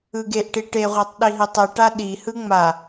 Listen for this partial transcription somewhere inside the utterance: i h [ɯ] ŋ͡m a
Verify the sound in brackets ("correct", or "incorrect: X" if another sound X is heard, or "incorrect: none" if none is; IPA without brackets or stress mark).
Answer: correct